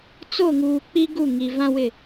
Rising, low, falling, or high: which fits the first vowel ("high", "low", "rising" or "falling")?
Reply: falling